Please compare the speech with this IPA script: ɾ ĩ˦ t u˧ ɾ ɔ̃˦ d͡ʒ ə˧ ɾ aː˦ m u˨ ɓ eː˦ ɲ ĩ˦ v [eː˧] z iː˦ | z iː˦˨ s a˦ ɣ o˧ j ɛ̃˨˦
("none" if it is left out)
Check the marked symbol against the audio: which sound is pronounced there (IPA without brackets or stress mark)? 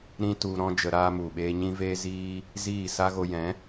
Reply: eː˦